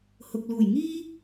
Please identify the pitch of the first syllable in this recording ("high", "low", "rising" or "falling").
low